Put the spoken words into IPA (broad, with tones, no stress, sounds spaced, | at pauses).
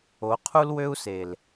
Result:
o˨˦ qʰ u˦ l w ø˦ u̯ s e˨ l